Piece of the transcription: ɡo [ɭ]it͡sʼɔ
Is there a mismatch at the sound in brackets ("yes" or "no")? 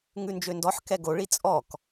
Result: no